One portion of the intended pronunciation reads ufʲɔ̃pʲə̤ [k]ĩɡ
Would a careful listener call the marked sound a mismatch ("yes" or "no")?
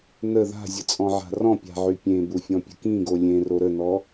no